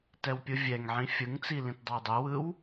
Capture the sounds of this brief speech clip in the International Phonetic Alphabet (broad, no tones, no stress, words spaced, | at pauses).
tɛwpʲɯvʲɛŋʕĩ fʲɯŋt͡si lĩtdˤɑdˤɯwɯw